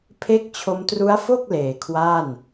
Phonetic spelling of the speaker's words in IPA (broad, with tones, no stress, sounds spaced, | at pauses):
pʰ e˦˥ k̚ t͡ɕʰ o˧ m t r u˦˥ a̯ f o˥˩ k̚ l eː˩˦ kʰ w aː˥˩ n